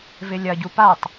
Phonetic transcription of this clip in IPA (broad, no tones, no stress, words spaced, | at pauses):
vɪlʲɐɟu patˤ